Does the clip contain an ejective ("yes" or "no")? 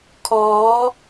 no